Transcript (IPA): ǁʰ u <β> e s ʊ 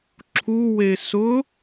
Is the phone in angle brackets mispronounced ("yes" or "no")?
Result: yes